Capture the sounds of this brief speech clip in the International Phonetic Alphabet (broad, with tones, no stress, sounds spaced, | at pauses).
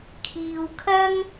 kʰ iː˧ w kʰ ɐ˥ ŋ